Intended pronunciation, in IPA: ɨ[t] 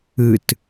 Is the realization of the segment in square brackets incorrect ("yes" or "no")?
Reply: no